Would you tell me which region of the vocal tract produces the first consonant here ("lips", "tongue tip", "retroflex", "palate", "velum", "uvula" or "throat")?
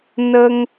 tongue tip